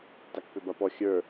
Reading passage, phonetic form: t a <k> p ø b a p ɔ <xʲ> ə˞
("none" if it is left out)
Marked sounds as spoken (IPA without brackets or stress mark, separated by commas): k, xʲ